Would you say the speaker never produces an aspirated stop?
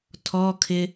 no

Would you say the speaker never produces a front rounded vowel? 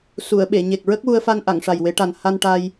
yes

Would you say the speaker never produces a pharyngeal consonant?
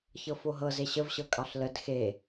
yes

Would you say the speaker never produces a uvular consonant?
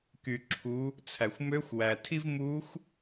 yes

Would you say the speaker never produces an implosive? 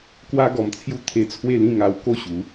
yes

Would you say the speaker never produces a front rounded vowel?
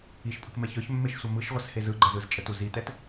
no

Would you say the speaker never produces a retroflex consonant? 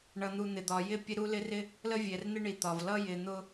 no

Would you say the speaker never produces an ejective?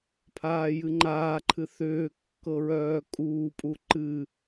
no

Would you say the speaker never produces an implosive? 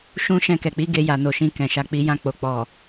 yes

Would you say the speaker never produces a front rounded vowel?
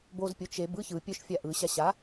no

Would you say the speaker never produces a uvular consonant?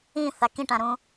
yes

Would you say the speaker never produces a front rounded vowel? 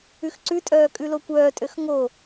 no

